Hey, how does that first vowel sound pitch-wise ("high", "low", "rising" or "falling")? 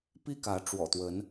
high